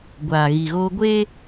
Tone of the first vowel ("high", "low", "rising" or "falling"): low